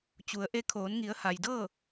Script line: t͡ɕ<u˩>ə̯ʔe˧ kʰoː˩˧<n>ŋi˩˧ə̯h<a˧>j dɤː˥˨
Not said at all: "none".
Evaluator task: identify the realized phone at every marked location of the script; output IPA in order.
u˩, n, a˩

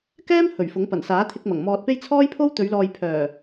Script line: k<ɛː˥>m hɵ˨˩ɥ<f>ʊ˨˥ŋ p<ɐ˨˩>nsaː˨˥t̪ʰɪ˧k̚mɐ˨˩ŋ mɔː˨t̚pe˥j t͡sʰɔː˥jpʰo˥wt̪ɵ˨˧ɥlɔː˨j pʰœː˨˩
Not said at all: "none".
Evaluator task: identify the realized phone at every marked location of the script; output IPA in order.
ɛː˥, f, ɐ˨˩

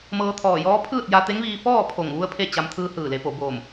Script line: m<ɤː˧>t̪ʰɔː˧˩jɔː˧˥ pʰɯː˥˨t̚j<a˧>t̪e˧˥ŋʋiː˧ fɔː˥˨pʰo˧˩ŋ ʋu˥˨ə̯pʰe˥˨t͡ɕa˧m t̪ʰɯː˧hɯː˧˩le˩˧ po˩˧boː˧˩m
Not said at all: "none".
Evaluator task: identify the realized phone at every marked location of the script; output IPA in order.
ɤː˧, a˧

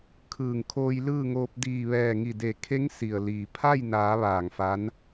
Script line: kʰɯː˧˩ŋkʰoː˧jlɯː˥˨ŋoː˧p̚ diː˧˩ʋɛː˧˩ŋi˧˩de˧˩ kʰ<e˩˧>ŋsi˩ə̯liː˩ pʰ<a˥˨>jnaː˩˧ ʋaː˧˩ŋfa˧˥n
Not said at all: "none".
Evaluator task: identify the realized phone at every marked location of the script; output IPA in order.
e˧˥, a˥˨

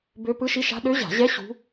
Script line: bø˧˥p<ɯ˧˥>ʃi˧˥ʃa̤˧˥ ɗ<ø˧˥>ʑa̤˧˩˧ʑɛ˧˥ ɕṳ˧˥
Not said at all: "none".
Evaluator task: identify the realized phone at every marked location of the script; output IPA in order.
ɯ˧˥, ø˧˥

